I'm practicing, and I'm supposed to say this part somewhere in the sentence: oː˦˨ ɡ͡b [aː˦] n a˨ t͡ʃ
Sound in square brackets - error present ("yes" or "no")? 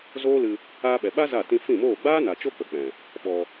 no